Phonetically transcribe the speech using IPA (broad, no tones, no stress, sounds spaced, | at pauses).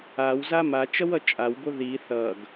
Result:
a w z a m a t͡ʃ ʌ w ʌ t͡ʃʼ a w b o ð i θ ʌ ɡ